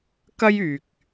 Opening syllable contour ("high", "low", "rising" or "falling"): high